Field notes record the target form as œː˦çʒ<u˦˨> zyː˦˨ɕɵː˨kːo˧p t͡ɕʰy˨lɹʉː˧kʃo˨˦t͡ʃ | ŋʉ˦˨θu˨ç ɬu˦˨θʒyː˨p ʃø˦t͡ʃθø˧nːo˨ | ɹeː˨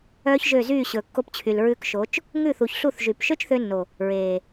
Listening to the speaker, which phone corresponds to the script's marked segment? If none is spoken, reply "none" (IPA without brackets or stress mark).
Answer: ø˦˨